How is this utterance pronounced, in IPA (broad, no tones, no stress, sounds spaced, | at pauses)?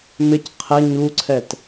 m ɪ c qʰ ɛ ɲ u ǀʰ ɛ t